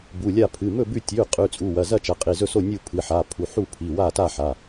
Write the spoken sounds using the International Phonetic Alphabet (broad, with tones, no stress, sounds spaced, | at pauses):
b u˩˧˩ lʲ a˥˨ pʰ ɨ˩˧˩ m ɵ˥˨ b ʉ˥˨ tʲ ʉ˩˧˩ qʼ ʉ˩˧˩ t͡sʼ u˩˧˩ w ɐ˩˧˩ z ɐ˥˨ t͡ʃ ɐ˩˧˩ qʼ i˩˧˩ z ɵ˥˨ s o˥˨ nʲ u˥˨ pʰ ɨ˩˧˩ ħ a˩˧˩ pʰ u˩˧˩ ħ u˥˨ pʰ i˩˧˩ w a˥˨ t a˥˨ ħ a˩˧˩